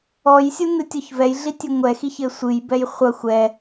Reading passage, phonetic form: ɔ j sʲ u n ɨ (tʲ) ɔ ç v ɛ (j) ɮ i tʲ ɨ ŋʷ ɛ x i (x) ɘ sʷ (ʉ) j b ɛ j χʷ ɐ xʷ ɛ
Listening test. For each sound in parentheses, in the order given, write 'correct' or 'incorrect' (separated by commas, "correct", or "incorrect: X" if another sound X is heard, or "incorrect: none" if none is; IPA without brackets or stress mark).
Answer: correct, correct, incorrect: ç, incorrect: ɨ